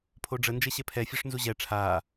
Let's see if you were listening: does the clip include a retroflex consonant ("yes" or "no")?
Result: yes